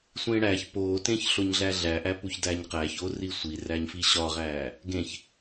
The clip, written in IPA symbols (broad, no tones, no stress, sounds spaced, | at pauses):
sʷ ẽː ɽ æ ç p oː t ẽ ç ɬ o ɲ ɮ æ ɮ æ ʔ æ p u ç d æ ɲ q æː ç o r i sʷ i r æ ɲ f i ɕ ɒ ʁ æː | ɡ ẽ ç